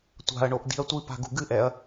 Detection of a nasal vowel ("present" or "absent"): absent